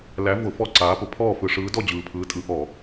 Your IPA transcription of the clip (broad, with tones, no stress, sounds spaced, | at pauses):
l æ˨˦ v ʊ˧˩˧ f ɔ˥˨ ǀ aː˨˦ p ʊ˨˩ pʰ ɔː˥˨ f ɯ˧˩˧ ʂ ɯː˨˦ d ɔ˥˨ d͡ʑ ɯː˨˩ pʰ ɯː˨˦ tʼ ɯ˨˦ ʔ ɔ˧˩˧